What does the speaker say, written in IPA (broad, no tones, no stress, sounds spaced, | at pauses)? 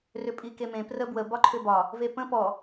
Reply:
r ʏ pʼ i k e m ẽ p r ə b w ə b ɒ ǃʰ ʏ b ɒ | v e p ə̃ p ɔ